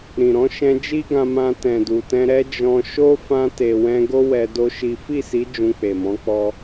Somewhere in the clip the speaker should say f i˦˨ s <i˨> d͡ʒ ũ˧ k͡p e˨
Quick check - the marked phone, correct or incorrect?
incorrect: i˨˦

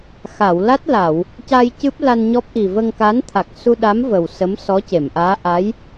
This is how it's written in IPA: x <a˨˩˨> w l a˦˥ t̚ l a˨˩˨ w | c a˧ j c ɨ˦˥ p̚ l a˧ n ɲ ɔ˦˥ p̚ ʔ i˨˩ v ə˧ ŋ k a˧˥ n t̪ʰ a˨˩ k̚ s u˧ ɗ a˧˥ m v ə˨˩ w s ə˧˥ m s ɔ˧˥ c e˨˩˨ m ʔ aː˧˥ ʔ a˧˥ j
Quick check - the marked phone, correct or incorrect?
correct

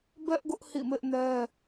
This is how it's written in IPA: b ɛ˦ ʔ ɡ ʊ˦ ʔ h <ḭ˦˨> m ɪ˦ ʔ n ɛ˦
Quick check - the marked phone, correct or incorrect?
correct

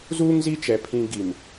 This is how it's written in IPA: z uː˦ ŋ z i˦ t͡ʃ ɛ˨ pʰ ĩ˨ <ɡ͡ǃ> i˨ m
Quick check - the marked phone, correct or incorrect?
incorrect: ɡ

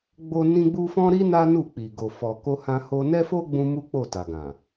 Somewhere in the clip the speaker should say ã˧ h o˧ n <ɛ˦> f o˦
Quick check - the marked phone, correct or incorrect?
correct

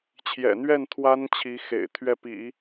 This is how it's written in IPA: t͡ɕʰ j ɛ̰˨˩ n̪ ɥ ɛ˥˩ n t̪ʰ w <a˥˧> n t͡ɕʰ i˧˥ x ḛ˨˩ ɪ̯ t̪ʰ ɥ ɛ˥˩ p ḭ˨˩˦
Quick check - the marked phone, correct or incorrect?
incorrect: a˥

